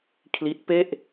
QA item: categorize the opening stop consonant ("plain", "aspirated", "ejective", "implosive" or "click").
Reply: aspirated